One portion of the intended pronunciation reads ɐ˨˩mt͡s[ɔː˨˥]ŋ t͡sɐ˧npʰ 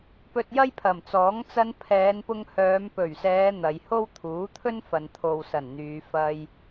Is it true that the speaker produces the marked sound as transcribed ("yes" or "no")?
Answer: yes